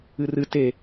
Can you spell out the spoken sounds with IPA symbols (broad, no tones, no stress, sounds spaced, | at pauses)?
ɨ r ɨ t e